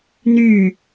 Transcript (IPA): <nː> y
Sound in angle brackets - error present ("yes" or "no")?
yes